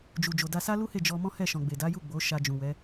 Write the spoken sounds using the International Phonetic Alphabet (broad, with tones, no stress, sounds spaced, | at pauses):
d͡ʒ u˨ d͡ʒ o˨ d a˧ s a˦ l u˦ h e˦˨ d͡ʒ ɔ˧ m ɔ̃˦ h ɛ˦˨ ʃ ɔ̃˨ ɡ͡b e˨ d a˨˦ j u˦˨ ɡ͡b o˨˦ ʃ a˧ d͡ʒ ũ˨ w ɛ˨˦